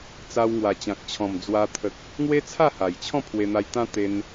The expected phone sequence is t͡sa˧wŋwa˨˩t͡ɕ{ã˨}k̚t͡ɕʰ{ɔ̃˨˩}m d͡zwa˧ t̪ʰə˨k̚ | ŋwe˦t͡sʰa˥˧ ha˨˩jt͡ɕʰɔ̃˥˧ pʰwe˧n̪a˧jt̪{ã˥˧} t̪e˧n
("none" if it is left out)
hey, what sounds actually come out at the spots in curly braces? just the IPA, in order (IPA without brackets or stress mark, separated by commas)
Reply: ã˨, ɔ̃˨˩, ã˦